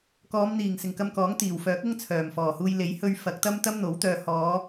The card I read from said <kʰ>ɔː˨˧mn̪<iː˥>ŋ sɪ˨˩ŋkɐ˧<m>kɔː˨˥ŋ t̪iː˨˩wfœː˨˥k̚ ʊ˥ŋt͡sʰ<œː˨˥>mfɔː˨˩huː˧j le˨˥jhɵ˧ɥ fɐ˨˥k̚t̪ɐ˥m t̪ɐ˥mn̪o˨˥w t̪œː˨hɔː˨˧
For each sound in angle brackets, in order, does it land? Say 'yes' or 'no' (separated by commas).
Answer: no, no, yes, no